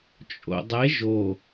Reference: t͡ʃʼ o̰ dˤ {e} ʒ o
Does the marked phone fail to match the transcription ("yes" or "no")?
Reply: no